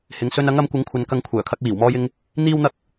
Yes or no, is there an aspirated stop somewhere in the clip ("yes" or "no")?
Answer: yes